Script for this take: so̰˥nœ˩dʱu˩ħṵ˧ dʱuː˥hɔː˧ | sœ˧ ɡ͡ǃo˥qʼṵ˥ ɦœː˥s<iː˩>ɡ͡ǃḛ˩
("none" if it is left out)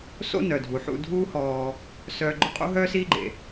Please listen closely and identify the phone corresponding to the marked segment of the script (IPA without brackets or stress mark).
iː˥